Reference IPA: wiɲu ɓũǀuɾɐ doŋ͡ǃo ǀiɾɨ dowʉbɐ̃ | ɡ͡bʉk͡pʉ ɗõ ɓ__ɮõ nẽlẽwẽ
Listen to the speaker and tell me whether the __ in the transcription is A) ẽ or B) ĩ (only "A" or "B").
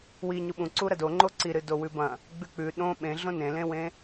A